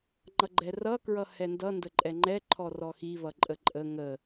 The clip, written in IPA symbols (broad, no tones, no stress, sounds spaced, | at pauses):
ŋ͡ǃ ʌ ɡ͡ǃ ɛ r ʌ k ɹ ʌ h ɛ n d ʌ n d ə ǃʼ ɛ ŋ͡ǃ ɛ ǃʰ ɔ r ɔ x i β ʌ ǃʼ ə ǃʼ ə ŋ ə